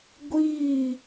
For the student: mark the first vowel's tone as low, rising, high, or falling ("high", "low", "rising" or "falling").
falling